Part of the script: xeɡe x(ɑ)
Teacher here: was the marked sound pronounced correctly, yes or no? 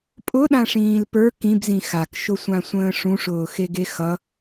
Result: no